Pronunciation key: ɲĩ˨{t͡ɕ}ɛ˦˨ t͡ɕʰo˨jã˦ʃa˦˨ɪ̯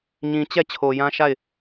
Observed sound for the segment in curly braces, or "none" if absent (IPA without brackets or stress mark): t͡ɕ